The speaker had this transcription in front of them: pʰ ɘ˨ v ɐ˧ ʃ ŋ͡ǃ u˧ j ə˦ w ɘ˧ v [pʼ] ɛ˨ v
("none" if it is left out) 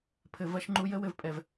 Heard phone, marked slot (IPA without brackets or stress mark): pʼ